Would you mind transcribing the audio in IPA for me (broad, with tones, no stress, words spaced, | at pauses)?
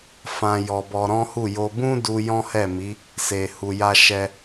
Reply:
fã˧ jɔ˧bɔ˧ɾɔ̃˦hu˦˨ jo˧bũ˦du˧ jɔ̃˦hɛ˦˨mi˨˦ | se˨hu˨ja˧ ʃɛ˧